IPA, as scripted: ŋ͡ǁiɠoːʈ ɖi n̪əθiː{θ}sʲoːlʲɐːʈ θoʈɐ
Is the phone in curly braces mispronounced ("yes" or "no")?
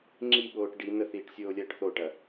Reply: yes